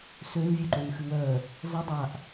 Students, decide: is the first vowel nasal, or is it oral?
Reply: oral